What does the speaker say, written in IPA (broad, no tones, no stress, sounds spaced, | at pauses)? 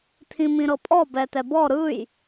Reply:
t̪ʰ ĩ m ĩ ɾ ɤ pʼ ɔ b ɛ t̪ ɛ b ɔ ɾ ɯ j